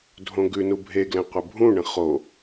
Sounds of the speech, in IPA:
dʱõɡʉnu bʱeɡlɛ̃ qʷəbʱũɳə̃ χo

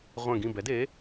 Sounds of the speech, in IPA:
ʁʷɛ̃˦˨ɡĩ˦˨bɛ˨˥de˨˥

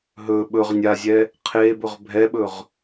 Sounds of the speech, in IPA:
ɦɵ ɓɵʁ nʲazʲɛ | qʰe bɵʁbʱɛɓɵʁ

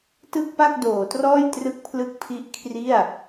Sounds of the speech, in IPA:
tɯ˥˩k̚pa˥˩k̚doː˩˦trɔː˥˩j trɯ˥˩k̚pʰlɯ˥˩k̚pʰi˥˩ʔ kʰri˥˩a̯

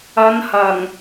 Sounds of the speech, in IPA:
ɐ˨˧nhɐ˨˩ŋ

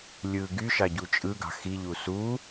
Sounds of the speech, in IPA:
lʲɯ ɡyʃɑɟu t͡ʃʼɯɡɑ̤ xiʎu su

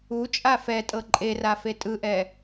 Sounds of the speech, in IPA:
ut͡ʃʼa fɛtʼɤ ǃʼerafe tʼɯʔɛ

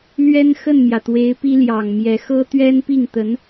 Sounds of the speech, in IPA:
lɥɛ˥nxə˥˩nmjä˩t̪we˧˥ɪ̯ pi˥ljɑ˨˩ŋmjɛ˧˥ xɤ˥t̪ɥɛ˥npi˥˩ŋt̪ə˧˥n

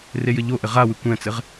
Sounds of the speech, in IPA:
rejɘʎoʔɘ ʁawɨ kʷɛ̃t͡sɘʁ

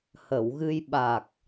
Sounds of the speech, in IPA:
hə˨˩˨wɣɨ˧j ɓa˨˩k̚

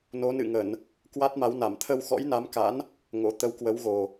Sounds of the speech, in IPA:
no˨˦nɨ̰˧˨ŋə˧˩˨n | kwa˦˥t̚ma˨˦wna˧˩m t̪ʰə˧wxɔ̰˧˥jna˨˦mka̰˧˥n | ŋo̰˧˥ t̪ə˨˦wkwə˨˦wɣo˨˩

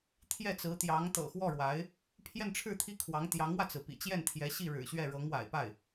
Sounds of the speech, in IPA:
t̪ʰjɛ˥˩t͡sɹ̩˧˥t̪jɑ˧˥ŋ t̪ɤ̰˨˩xwɔ˥˩ɻwa˧˥ɪ̯ | pʰjɛ˥˧nʈ͡ʂʰɻ̩˥˧t̪ʰi˥˩ kʰwɑ˧˥ŋ t̪jɑ˧˥ŋwä˧t͡sɹ̩˩pḭ˨˩ t͡ɕjɛ˥˩nt̪ʰjɛ˧˥ɕi˥˩ ɻɻ̩˨˩ɕɥɛ˥˩ɻɤ˧˥ŋ wa̰˨˩ɪ̯pa˥˩ɪ̯

